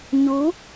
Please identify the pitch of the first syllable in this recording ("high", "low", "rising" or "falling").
rising